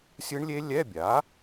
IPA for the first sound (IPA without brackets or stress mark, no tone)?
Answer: sʲ